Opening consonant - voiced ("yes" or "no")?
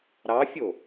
yes